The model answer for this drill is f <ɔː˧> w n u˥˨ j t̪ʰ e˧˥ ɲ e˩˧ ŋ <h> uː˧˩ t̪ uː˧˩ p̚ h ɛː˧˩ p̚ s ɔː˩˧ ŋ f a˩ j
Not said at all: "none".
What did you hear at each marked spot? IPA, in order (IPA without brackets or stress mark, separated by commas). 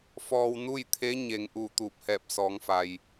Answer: ɔː˧, ʔ